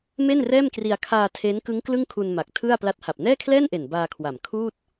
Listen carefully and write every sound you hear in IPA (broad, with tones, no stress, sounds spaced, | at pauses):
m e˥˩ n r ɛː˥˩ m k r i˧ a̯ kʰ aː˧ tʰ e˦˥ n k ɯ˦˥ ŋ k l ɯ˥˩ ŋ kʰ u˧ n m a˨˩ k̚ tʰ ɯ˥˩ a̯ p l a˦˥ t̚ h a˨˩ p̚ n ɛː˥˩ kʰ l ɛː˥˩ n ʔ e˨˩ n b aː˧ kʰ w a˨˩ m kʰ uː˥˩ t̚